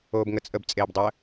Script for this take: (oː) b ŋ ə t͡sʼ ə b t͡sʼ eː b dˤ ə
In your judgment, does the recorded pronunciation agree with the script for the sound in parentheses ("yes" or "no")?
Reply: yes